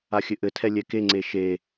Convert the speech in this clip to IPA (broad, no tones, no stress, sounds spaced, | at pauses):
a xʲ ɘ ʔ ɘ tʰ ɛ lʲ ɛ k e ŋ͡ǀ e ʃ e